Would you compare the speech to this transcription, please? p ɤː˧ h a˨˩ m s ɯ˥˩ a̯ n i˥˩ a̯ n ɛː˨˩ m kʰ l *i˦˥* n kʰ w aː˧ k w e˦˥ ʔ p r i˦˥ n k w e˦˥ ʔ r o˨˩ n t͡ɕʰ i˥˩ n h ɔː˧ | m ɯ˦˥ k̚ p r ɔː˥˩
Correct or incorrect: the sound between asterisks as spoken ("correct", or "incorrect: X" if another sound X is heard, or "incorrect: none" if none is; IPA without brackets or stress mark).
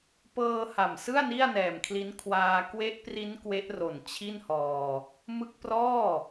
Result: correct